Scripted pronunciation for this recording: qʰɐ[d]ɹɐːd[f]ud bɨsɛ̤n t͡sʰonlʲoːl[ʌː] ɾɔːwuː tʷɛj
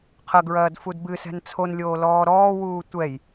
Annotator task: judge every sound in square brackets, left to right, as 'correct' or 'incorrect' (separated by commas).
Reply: incorrect, correct, incorrect